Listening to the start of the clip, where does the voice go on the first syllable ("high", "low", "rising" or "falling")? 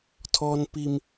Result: high